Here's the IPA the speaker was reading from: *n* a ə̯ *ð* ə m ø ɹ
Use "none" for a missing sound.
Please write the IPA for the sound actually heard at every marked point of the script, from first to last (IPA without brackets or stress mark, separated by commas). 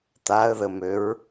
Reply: t̪, ð